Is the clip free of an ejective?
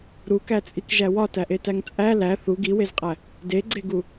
no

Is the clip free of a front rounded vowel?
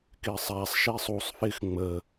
yes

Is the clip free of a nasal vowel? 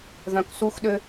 no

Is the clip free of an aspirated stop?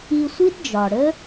yes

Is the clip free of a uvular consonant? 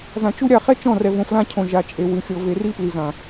no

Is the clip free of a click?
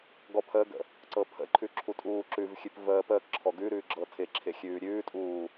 no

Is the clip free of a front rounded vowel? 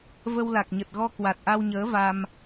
yes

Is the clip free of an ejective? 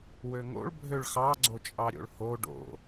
no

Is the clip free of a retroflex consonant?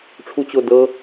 no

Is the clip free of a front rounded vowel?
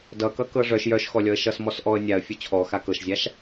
no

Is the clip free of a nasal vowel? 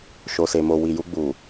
yes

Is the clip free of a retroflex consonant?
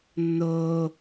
yes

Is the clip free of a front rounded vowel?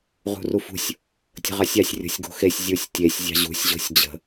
yes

